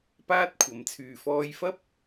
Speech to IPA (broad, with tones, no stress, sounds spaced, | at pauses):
p aː˥ t̚ kʷʰ ɐ˨˥ m t͡sʰ yː˨ f ɔː˧ j f ɐ˥ p̚